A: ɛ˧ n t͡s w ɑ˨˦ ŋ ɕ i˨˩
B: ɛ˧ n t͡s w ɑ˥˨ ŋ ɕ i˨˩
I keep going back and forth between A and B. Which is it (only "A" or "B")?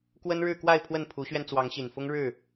A